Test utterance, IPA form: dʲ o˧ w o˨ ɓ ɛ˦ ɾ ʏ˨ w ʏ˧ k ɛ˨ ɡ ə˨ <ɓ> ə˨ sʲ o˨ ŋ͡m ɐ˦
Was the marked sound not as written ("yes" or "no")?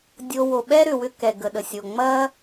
yes